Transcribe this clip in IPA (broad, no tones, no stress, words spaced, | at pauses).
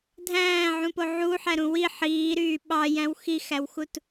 dʱæ̃ːʕũpo ʕuħæɾũ wi ħiːɾyː ɓɑjæ̃w xixæwxut